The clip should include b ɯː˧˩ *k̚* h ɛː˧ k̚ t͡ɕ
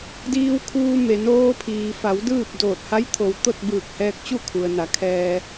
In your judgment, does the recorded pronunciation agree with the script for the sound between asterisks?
yes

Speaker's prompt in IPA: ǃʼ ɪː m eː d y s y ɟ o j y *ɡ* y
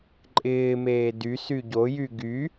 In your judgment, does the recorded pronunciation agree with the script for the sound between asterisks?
yes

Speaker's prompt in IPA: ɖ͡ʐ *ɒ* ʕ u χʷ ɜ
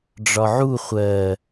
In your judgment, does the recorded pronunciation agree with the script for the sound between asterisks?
yes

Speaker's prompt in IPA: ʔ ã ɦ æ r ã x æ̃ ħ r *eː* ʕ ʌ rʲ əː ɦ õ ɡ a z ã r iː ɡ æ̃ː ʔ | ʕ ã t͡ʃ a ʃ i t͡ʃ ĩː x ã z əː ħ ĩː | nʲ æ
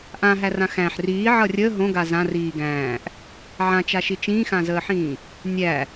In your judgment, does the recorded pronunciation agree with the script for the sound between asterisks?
no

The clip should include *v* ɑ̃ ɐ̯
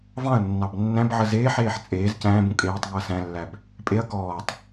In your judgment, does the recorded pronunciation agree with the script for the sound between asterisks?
yes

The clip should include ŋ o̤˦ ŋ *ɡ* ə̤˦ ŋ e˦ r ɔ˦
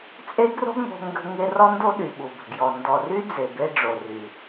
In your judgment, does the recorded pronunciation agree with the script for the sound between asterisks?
yes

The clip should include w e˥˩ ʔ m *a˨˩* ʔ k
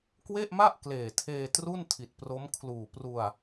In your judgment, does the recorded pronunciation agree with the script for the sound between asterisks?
no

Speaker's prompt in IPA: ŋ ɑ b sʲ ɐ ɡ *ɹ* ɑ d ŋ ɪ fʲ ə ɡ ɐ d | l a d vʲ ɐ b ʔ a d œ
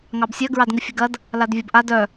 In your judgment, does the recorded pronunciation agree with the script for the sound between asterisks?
yes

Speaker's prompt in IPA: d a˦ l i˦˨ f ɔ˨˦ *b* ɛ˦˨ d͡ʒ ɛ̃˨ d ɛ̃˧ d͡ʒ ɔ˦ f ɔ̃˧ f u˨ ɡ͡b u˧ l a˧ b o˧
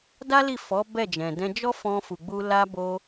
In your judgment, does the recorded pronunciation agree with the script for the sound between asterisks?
yes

